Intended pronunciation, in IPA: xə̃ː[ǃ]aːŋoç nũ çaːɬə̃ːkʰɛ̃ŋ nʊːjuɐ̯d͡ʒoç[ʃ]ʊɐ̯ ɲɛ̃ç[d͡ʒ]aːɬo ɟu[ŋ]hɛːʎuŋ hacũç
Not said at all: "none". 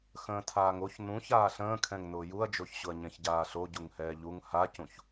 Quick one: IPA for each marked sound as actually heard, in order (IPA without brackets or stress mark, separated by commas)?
tʰ, ɕ, ɟ, ŋ